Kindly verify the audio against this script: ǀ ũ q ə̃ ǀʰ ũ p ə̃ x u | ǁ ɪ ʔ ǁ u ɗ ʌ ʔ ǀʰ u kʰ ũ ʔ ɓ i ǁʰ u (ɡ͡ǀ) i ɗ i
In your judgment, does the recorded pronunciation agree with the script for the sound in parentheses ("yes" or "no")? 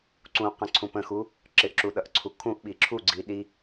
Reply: yes